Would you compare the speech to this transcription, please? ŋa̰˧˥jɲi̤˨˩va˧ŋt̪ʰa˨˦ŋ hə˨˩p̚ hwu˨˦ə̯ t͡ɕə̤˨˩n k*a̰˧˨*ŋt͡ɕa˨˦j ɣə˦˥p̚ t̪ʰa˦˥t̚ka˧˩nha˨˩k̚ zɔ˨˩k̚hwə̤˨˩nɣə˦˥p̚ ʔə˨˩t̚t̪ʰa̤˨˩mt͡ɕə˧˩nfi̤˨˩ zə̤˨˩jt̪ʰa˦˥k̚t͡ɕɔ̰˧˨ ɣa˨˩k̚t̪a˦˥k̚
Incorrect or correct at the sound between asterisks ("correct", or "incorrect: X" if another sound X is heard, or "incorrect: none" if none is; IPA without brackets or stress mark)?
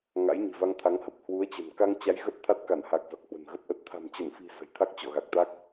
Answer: incorrect: a˧